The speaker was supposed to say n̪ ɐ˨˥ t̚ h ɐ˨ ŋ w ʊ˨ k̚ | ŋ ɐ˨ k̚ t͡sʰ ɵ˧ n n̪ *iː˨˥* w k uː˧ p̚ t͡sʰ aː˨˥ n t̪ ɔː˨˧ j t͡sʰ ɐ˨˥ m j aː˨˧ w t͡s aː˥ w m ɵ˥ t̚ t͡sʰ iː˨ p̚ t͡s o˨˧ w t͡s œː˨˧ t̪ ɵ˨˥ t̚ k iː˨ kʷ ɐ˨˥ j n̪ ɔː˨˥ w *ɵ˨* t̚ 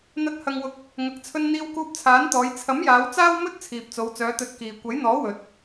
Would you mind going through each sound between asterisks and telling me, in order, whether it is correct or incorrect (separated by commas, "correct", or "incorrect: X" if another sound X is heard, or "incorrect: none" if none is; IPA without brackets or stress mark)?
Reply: incorrect: iː˧, correct